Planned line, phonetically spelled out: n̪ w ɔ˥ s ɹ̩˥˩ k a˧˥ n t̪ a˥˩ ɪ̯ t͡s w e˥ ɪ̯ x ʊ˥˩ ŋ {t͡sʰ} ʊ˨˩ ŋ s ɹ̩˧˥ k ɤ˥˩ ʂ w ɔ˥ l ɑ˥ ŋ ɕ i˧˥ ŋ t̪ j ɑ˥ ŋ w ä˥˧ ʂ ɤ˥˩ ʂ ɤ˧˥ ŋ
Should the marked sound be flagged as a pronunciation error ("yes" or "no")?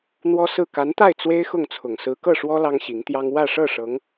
no